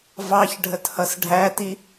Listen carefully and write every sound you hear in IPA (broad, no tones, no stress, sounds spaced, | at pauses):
v ɑ ç ɖʱ ə t h ʌ s ɖʱ æ t i